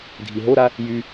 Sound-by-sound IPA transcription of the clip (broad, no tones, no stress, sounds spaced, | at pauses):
dʱ i ɦ o ɾ a | j y